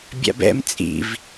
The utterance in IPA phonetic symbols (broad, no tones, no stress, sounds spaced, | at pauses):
bʲ a̰ b ɛ̰ m t͡sʼ ḭ v